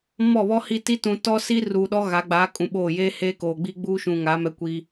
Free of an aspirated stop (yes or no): yes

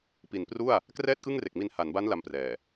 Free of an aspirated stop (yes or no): yes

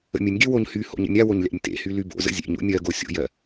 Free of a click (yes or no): yes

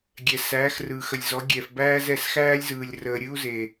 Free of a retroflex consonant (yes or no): yes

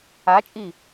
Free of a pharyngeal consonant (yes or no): yes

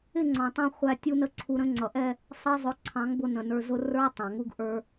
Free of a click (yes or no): no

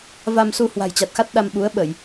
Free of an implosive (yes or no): no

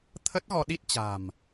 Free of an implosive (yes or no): no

